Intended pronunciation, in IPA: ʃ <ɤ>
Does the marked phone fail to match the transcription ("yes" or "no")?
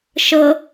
no